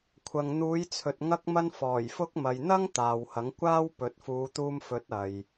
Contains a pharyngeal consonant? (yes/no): no